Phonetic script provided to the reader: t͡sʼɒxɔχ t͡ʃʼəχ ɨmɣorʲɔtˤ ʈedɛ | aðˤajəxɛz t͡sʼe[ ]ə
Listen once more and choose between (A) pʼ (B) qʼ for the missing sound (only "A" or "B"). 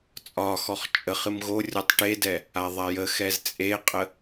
B